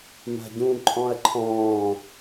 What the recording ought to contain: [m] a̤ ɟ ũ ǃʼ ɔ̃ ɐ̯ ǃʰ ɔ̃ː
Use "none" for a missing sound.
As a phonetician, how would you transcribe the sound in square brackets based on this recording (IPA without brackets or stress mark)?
m